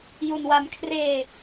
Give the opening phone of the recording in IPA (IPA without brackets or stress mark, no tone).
j